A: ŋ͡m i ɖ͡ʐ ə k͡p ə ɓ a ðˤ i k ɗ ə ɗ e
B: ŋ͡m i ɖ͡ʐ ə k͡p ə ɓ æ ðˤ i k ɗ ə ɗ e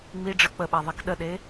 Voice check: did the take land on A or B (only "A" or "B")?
A